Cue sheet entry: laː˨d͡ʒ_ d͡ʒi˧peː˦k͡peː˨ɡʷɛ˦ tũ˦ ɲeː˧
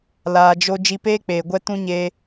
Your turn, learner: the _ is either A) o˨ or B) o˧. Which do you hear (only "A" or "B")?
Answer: B